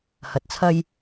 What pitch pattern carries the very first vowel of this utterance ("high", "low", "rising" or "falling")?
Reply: low